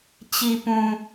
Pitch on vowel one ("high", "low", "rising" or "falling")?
low